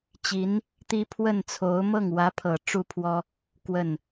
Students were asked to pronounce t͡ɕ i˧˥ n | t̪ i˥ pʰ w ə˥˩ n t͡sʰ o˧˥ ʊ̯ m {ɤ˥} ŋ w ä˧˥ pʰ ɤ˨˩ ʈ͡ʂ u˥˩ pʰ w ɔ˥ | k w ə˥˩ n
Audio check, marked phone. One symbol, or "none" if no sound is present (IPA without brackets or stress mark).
ɤ˥˩